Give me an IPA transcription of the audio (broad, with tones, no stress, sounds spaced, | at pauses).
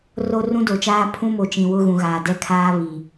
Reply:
r o˦ r ũ˦ d o˨ t͡ʃ aː˦ pʰ ũ˦ m o˨ t͡ʃ ĩ˨ w ʊ˦ ɣ ũ˨ ɣ aː˨ d ɛ˦ kʰ aː˦ β i˨